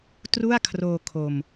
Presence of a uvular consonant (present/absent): absent